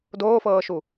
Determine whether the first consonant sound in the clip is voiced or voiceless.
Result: voiced